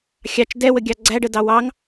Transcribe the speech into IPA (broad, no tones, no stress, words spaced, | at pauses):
xʲɑt͡ʃ dɛwəɡʲɑ ɡ͡ǀæɖədɑ wɑŋ